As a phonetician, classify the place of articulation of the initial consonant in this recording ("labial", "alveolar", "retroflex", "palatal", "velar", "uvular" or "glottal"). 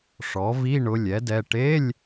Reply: retroflex